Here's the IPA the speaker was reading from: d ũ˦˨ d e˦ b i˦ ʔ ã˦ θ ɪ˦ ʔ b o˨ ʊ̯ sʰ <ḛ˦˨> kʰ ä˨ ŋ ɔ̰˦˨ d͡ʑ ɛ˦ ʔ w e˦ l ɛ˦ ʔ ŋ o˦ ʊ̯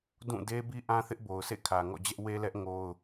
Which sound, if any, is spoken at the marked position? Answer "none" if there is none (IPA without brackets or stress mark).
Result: ḛ˦˨